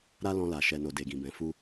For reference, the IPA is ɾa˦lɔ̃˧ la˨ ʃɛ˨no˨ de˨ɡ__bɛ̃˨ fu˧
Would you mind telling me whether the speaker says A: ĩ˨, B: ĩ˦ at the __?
A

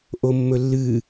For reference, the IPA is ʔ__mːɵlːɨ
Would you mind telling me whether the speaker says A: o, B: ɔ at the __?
A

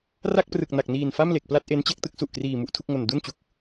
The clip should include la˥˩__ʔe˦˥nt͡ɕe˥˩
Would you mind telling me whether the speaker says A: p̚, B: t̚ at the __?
B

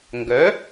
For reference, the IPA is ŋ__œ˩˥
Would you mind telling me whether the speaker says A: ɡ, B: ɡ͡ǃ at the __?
A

